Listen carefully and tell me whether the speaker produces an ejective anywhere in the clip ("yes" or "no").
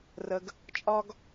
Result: yes